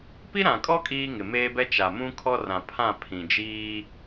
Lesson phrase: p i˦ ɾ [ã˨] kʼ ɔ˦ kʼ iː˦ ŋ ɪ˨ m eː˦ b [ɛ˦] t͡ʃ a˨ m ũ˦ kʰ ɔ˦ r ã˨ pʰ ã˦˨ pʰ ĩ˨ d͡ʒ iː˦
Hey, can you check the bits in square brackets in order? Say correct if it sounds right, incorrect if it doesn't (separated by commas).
correct, correct